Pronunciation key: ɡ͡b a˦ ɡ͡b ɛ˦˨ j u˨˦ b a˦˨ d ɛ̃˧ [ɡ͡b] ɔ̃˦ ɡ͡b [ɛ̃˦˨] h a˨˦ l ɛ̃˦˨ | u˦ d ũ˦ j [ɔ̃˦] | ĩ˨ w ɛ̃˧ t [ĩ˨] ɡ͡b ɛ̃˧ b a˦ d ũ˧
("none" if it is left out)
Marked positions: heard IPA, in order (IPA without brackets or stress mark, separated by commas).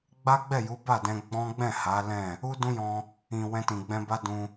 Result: ɡ͡b, ɛ̃˦˨, ɔ̃˧, ĩ˨